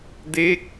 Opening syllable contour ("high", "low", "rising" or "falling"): falling